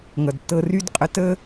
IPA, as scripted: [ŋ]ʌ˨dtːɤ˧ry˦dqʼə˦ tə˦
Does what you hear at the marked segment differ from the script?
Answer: no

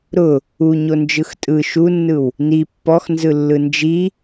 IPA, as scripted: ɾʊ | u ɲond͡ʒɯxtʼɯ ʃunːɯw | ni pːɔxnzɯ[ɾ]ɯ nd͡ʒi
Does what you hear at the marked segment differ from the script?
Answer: yes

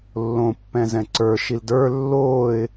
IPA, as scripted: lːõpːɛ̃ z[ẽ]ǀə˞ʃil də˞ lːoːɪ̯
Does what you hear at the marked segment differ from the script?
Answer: yes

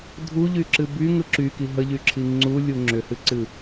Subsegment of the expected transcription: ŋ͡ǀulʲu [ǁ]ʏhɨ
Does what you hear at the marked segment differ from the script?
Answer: yes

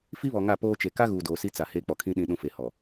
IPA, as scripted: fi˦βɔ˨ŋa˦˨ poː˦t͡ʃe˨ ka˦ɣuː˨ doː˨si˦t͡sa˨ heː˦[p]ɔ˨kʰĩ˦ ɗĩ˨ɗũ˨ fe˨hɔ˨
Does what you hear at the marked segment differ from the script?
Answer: yes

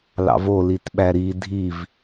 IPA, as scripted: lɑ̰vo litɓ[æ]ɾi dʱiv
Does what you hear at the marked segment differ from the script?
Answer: no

